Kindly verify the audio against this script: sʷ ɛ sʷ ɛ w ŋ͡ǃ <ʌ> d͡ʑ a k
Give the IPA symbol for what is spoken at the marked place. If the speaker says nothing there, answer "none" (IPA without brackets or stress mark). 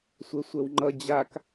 ʌ